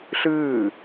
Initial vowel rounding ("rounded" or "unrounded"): unrounded